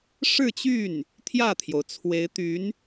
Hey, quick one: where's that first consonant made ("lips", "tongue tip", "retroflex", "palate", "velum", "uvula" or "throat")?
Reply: retroflex